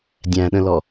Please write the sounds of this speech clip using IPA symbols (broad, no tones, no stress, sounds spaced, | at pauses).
dʲ æ̃ ɗ ə̃ l ɔ